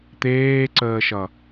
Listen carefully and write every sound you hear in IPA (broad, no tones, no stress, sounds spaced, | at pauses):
t̪ eː ǀ əː ʃ ʌ